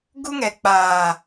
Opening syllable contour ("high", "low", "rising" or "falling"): high